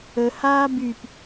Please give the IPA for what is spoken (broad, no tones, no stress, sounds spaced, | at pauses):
ə h aː b y p